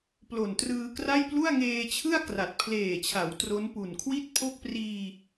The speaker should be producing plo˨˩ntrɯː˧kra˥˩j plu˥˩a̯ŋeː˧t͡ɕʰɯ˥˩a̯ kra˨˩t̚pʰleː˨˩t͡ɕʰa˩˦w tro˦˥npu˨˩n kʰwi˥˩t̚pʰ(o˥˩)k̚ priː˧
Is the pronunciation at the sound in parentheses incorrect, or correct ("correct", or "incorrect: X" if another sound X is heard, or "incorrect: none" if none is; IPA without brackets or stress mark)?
correct